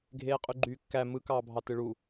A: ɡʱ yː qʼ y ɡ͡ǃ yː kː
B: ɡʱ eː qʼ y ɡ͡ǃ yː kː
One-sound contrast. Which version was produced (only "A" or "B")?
B